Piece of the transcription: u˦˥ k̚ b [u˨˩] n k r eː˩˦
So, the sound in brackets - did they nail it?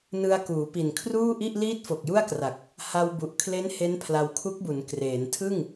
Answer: no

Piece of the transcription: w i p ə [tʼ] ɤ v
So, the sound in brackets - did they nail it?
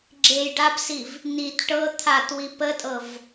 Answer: yes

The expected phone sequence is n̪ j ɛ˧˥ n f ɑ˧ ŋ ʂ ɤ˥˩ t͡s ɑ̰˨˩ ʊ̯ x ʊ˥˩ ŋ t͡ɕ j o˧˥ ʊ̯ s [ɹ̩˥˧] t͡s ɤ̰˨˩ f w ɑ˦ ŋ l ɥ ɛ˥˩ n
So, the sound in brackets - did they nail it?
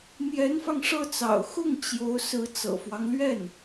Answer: no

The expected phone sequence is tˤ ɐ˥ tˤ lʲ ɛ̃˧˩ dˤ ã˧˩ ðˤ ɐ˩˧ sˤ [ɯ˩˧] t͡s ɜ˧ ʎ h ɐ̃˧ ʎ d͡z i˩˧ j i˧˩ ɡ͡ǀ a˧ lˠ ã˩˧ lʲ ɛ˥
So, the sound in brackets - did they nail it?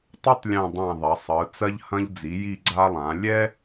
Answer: yes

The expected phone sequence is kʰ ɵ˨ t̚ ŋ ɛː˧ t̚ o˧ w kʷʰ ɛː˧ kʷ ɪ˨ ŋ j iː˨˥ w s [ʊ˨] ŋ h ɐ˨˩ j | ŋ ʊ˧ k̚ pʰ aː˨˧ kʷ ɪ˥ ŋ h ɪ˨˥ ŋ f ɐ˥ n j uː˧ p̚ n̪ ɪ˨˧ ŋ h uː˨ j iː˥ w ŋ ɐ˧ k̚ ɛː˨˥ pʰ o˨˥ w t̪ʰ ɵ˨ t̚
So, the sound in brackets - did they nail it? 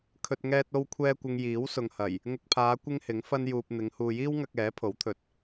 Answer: yes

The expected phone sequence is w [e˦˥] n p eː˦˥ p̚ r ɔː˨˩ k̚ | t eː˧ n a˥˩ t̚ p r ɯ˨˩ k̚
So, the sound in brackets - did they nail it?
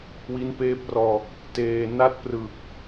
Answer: no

